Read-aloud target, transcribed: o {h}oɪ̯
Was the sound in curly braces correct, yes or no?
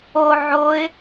no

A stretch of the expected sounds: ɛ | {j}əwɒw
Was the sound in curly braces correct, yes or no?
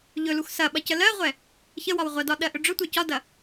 no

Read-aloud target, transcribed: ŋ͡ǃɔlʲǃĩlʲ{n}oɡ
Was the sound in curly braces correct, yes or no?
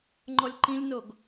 yes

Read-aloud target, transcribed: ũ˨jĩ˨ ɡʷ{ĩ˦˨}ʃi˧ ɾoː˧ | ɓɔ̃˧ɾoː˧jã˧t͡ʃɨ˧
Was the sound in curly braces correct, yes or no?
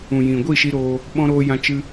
no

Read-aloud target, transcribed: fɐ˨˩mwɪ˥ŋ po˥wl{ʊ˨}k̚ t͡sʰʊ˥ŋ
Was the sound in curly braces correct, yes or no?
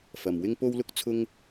no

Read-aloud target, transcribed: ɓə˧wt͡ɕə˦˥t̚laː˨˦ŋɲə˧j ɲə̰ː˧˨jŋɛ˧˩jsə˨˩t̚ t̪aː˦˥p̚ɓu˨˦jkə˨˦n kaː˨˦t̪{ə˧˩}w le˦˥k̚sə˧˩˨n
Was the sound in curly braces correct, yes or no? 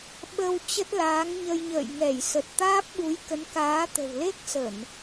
no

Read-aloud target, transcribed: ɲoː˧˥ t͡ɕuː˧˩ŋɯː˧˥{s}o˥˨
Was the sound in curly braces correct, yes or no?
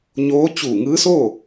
yes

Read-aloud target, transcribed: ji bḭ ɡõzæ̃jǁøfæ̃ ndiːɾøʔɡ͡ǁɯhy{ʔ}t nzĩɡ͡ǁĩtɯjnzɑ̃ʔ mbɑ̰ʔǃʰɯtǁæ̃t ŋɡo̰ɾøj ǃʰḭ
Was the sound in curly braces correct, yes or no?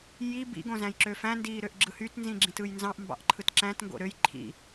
no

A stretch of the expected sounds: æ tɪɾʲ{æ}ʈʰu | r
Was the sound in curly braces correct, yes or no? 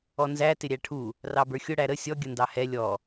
yes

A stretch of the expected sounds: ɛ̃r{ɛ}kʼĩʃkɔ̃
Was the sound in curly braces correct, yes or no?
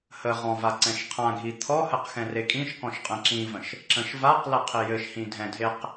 no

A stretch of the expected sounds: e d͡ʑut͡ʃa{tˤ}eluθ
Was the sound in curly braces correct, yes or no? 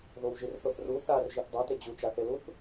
no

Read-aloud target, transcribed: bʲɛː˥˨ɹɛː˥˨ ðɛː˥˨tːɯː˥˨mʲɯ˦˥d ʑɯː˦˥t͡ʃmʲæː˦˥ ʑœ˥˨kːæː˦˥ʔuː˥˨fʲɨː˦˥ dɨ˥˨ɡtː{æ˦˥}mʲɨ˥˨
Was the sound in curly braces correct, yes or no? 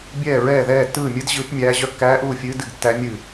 yes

